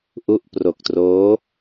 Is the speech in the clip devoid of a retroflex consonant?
yes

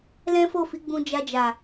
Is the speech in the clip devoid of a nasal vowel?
no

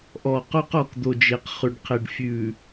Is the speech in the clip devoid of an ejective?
yes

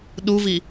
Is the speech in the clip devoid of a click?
yes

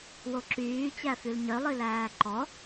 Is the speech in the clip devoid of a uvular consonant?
yes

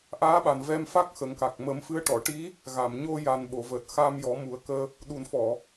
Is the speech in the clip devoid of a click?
yes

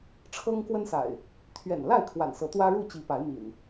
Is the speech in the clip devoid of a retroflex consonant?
no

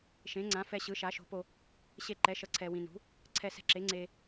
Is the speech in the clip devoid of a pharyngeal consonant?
yes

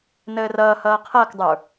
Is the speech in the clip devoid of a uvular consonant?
no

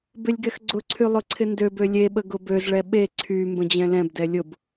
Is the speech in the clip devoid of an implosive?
no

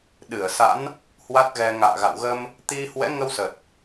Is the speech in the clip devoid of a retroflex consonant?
yes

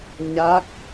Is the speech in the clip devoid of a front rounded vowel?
yes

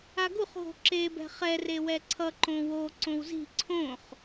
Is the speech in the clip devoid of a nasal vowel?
no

